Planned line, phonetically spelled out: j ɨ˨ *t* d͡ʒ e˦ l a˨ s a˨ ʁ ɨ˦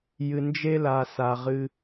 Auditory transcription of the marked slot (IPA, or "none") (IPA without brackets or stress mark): n